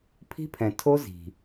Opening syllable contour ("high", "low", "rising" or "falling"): high